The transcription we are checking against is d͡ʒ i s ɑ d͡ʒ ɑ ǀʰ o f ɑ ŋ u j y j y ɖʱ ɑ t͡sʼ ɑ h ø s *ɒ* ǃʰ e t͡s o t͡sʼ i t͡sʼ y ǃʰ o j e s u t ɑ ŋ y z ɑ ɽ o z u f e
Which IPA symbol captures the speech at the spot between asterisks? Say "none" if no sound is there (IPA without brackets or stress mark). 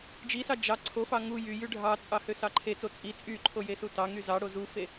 ɑ